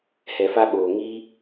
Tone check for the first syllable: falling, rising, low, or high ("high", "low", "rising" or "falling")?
low